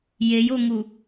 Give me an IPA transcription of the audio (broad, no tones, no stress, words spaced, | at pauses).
jejoŋu